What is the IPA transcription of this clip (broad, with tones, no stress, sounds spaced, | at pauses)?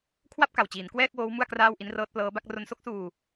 kʰ w a˥˩ p̚ k a˨˩ w t͡ɕ iː˩˦ n k w ɛː˥˩ k̚ w oː˦˥ w m u˥˩ a̯ k r aː˥˩ w ʔ i˦˥ n r ɤː˦˥ t̚ p l ɤː˦˥ b a˥˩ k̚ r o˧ n s o˥˩ k̚ s uː˧